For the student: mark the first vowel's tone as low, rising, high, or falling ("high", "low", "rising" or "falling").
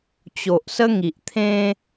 low